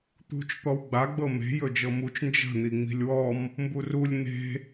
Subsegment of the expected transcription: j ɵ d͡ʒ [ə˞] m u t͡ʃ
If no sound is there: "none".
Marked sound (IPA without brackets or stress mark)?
ɤ